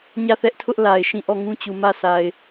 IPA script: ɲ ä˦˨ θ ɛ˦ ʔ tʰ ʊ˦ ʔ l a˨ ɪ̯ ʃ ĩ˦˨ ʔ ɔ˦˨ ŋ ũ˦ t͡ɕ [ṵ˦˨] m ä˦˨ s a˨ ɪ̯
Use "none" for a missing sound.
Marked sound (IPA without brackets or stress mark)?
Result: u˨